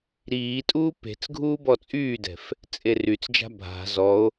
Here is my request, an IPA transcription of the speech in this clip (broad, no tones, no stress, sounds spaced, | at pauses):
ɾ iː tʼ uː p e̤ t͡s ɡʱ uː b ɔ t͡sʼ yː d ɛ̤ f | t͡sʼ e r y t͡s d͡ʒ a̤ bʱ a̤ z ɔ o̯